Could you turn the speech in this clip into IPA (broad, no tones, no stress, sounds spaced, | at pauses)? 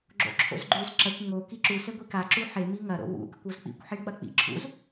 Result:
ɡ͡ǁ o̰ ǁʰ o̰ z ɡ͡ǃ ʉ z ǁ ɐ kʷ ŋ o k i ǁ u s e ɡʷ i k a ǁ u ħ e m i ŋ ɐ ɾ o̰ w ṵ ɡ ɐ kʷ o z k͡p ḭ kʷ ħ i ɳ k͡p ɐ k͡p ḭ ǁʰ ṵ z